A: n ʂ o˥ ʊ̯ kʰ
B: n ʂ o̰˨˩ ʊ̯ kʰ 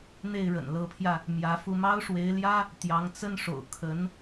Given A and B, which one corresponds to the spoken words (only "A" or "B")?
B